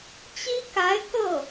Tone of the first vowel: high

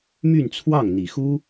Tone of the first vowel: falling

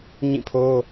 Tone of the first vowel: falling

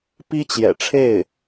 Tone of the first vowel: high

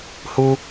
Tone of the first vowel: high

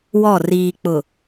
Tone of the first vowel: falling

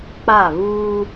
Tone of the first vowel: falling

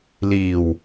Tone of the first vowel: low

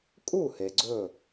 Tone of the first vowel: falling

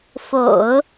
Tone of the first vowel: low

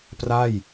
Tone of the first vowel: falling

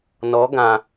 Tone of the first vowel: rising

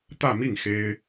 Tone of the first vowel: falling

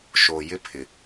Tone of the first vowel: low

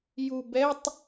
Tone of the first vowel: low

